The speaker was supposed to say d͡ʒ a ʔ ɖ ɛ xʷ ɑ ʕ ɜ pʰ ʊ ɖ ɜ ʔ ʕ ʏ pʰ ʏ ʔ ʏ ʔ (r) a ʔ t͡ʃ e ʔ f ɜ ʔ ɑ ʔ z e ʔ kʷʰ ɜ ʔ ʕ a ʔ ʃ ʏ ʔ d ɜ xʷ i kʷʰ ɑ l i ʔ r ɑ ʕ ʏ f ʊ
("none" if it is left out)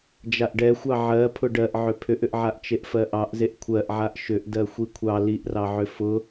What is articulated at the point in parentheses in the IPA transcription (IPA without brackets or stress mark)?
ʕ